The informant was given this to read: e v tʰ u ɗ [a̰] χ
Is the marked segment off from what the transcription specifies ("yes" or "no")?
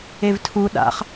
no